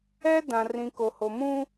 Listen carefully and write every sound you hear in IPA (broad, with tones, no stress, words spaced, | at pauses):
ɛ˦ dã˨rĩ˨ko˨ ho˨mũ˦